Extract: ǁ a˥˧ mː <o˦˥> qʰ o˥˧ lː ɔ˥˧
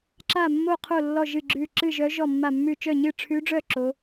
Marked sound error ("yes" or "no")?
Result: yes